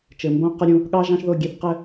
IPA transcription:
t͡ʃɘ˨mbõ˦ qə˦ɾʲũ˧ | ɠɑ˦ʒɑ̃˦ʃðo˦˨ ɡʲe˦θqɘ˦

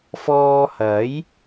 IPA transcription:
fɔː˧hɐ˨˥j

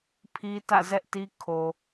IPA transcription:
pʰi˦tä̰˦˨zɛ˦ʔ ti˦kʰo˨

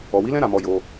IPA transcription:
ɔ˨wi˨˦lɛ̃˦ ɾa˧mɔ˧jo˧

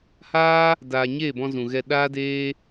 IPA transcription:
haː˦ | daː˨ ɲeː˦˨bɔ̃˧ zũ˨ɣɛ˧ ɗaː˦deː˦

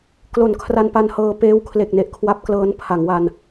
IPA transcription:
klo˨˩nkʰra˧npa˧n hɤː˧peː˦˥wkʰle˨˩k̚ ne˦˥ʔkʰwa˦˥p̚klɤː˦˥n pʰa˩˦ŋwa˧n

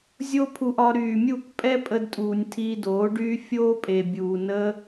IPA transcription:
zʲo˦pʰu˧ʔɒ˧ ɾyː˨mʲu˦˨k pʼɛ˦pʼə˧dtʼuː˨nʲ tʰiː˧doː˨˦ɖyː˦ fʲoː˦pʼe˨bʲuː˨ nə˧

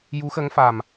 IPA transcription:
ju˧˥xə˧˥ŋ fa˨˩m

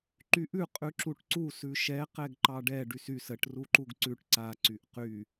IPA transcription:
ǃyʔʉ qʼʉǁuʈǀu sʉʃɛ qɛɡǃɑɖɛ ɖysys əʈ ruǃuɡǀʉʈ ǀa ǀyʔqy

